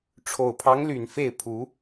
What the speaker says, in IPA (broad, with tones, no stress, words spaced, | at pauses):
ʈ͡ʂʰo˨˩ʊ̯pʰɑ˧˥ŋly˨˩n fe˥˩ɪ̯ pʰu˧˥